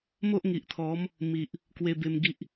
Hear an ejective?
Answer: no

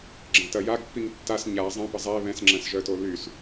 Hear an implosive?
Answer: no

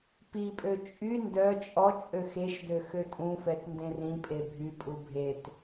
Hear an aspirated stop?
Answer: no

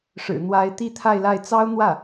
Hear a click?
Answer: no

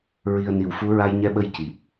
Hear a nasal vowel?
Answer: no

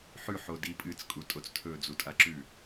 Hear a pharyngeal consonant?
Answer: yes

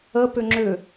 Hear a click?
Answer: yes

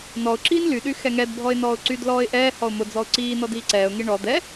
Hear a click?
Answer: yes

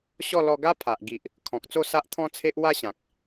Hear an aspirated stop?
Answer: yes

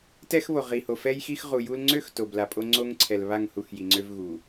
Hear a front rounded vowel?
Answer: yes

